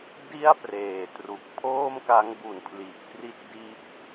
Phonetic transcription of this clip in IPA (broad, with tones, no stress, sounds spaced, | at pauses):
d i˥˩ a̯ p r eː˨˩ t r u˨˩ k̚ pʰ oː˥˩ m k a˦˥ ŋ b u˨˩ n pʰ l i˨˩ ʔ k r i˦˥ t̚ d iː˦˥ p̚